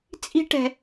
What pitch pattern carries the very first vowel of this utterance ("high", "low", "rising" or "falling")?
high